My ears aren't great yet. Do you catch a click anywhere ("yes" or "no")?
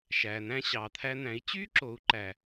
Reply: yes